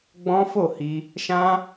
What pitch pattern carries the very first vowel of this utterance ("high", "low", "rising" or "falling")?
high